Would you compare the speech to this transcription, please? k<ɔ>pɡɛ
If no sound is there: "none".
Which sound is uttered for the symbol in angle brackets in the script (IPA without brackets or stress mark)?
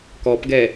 ɔ